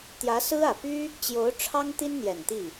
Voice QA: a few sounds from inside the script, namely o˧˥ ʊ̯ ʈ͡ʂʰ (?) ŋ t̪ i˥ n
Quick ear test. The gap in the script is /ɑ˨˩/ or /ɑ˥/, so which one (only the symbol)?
ɑ˥